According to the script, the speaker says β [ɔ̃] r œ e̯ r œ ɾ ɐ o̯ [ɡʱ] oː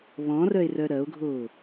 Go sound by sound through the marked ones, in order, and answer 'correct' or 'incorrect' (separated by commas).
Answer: correct, correct